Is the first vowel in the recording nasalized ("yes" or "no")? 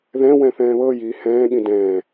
yes